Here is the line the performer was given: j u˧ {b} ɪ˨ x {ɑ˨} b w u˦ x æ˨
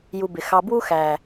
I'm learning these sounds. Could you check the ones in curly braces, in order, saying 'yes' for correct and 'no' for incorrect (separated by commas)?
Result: yes, no